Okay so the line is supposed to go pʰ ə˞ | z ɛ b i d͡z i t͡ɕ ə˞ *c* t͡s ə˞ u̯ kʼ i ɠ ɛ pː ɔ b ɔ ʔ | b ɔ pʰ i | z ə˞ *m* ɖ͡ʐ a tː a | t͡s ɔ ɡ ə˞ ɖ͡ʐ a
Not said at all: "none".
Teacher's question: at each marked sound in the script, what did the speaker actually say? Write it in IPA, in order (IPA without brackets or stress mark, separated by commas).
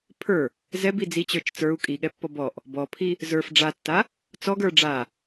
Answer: t͡ʃ, f